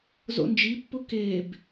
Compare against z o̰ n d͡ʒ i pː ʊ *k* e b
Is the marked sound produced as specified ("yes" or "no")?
yes